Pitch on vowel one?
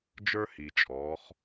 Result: high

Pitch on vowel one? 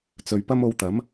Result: low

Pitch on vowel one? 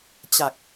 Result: low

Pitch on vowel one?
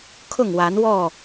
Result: falling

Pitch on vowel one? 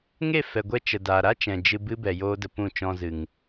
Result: falling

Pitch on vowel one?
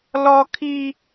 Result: high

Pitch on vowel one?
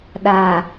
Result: low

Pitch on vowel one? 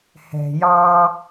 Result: low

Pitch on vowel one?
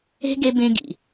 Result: high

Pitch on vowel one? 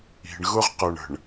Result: low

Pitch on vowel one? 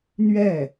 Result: falling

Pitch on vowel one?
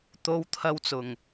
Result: high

